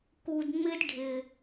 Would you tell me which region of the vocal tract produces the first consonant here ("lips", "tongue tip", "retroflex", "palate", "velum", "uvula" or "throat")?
velum